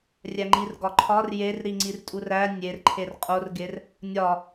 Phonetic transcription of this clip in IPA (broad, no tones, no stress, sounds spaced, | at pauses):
rʲ æ ŋ͡ǃ i r ɡ ɒ ǃʰ ɒ r j e r ɾ i ŋ͡ǀ i r tʼ u r æ nʲ e r ǃʰ e r qʼ o r ɡ e r | nʲ ɒ